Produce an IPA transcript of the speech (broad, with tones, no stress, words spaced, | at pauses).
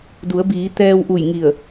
du˩˧ə̯biː˩˧ t̪ɛː˧wʔu˧˩jŋi˧˩ə̯